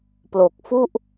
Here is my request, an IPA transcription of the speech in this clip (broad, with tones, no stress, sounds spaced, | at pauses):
p l o˨˩ k̚ f u˥˩ ʔ